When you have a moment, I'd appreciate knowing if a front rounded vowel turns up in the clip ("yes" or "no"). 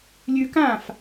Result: no